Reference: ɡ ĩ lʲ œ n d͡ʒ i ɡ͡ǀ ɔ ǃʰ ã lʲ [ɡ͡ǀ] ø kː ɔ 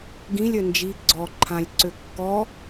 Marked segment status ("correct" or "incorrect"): incorrect